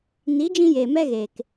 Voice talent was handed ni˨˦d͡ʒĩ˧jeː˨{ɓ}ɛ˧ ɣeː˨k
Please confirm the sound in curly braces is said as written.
no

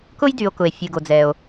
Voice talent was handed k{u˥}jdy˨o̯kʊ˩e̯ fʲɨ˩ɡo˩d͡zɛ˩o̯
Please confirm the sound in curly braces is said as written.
no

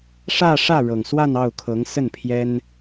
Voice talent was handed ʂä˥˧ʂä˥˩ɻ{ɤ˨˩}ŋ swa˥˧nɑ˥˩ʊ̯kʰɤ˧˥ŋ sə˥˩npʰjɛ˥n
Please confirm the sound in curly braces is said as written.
yes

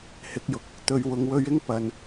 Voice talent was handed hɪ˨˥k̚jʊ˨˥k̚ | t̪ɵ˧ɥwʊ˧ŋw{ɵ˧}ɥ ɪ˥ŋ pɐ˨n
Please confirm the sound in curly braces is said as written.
no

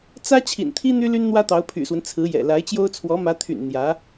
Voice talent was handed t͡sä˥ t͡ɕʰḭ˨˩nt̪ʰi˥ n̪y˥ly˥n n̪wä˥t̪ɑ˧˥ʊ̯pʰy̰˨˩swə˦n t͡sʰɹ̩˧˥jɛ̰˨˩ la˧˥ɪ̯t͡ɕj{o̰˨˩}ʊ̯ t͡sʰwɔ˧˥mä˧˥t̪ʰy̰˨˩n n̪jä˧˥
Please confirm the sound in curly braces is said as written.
no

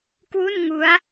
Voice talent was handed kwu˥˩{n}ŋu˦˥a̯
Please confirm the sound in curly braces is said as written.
yes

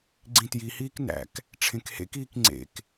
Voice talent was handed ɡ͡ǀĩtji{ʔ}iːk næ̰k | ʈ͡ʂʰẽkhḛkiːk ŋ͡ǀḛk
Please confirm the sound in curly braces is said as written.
no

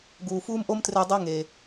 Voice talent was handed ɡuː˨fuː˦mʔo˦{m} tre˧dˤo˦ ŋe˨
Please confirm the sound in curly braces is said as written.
yes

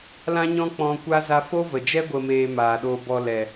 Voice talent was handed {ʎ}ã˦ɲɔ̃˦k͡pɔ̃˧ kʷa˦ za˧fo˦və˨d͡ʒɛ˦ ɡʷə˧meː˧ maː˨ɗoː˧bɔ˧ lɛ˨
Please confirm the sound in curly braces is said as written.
no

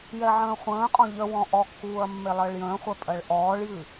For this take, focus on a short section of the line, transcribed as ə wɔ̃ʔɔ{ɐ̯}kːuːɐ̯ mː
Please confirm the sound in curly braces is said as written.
no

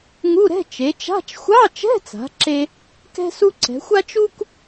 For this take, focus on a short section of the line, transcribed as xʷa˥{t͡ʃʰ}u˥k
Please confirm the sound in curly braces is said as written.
no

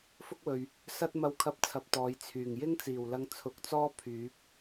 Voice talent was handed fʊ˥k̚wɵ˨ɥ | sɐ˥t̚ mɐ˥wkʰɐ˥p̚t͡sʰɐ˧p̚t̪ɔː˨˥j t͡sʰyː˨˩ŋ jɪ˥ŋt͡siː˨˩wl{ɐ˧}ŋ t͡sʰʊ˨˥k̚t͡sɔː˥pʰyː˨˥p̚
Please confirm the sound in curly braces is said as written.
yes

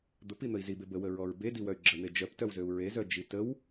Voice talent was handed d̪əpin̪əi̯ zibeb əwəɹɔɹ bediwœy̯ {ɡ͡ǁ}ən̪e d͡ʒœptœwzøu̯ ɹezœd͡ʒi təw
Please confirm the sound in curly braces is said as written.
yes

